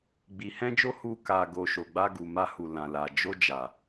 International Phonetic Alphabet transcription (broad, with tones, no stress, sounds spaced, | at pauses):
ɡ͡b i˨ h ɛ̃˧ d͡ʒ o˧ h u˧ k a˨ ɡ o˨ ʃ o˨ ɡ͡b a˧ ɡ u˨ m a˧ h u˨ l ã˨ l a˨ d͡ʒ o˧ d͡ʒ a˨